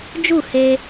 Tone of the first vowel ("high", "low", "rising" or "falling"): falling